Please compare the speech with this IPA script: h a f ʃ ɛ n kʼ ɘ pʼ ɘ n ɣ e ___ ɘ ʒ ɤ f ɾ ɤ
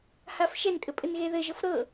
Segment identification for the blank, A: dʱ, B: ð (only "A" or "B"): B